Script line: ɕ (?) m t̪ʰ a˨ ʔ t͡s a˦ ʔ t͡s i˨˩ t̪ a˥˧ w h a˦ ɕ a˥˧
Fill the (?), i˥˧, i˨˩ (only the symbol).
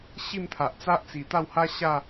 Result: i˥˧